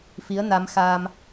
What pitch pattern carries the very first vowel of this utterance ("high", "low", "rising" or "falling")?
rising